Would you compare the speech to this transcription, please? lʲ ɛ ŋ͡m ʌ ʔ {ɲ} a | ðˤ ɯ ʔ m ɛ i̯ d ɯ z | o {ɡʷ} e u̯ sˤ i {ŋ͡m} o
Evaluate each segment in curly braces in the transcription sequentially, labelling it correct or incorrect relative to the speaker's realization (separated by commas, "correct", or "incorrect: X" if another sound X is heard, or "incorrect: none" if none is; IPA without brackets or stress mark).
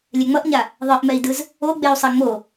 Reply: correct, incorrect: ɡ͡b, correct